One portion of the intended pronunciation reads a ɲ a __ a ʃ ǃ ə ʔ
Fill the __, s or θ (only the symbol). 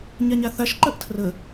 θ